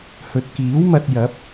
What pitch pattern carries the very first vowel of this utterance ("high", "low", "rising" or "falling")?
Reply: low